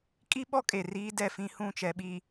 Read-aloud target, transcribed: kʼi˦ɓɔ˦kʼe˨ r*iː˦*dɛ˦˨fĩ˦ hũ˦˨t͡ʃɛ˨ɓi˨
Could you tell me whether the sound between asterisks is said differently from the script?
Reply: no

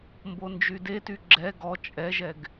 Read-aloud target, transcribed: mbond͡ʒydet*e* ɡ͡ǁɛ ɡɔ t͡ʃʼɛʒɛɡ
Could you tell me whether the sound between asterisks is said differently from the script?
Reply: yes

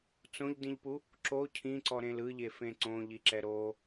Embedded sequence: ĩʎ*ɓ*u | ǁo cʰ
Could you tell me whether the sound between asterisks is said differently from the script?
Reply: yes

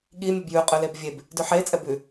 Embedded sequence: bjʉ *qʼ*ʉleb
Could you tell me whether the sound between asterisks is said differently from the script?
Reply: no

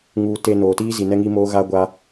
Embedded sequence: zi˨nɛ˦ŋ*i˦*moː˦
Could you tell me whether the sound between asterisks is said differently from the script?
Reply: no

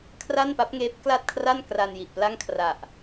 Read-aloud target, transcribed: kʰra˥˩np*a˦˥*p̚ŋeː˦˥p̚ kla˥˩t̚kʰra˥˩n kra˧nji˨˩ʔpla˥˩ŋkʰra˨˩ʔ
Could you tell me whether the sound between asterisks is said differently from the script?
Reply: no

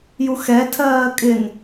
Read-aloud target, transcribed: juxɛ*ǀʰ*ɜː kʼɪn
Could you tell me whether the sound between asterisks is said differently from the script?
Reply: yes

